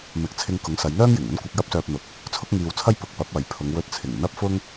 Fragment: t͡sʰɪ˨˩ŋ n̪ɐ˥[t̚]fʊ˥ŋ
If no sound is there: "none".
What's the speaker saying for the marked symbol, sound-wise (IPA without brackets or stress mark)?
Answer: p̚